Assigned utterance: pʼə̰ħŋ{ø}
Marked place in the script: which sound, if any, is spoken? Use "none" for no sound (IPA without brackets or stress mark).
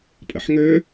ø